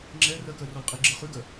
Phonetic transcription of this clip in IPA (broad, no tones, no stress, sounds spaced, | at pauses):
ŋ͡ǁ ɛ r ɜ k ɜ r ɔ l qʼ i ɡ͡ǁ ɜ χ ʉ ɡ ɜ